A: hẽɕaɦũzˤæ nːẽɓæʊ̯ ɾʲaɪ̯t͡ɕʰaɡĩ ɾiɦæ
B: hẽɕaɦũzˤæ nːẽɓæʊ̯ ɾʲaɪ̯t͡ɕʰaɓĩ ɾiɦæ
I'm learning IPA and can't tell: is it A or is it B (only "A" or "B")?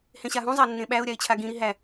A